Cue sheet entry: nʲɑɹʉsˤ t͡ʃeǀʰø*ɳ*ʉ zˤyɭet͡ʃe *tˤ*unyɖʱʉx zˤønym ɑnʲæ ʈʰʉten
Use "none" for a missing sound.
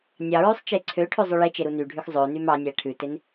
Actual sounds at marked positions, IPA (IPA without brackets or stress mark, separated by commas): ʈʰ, ɾ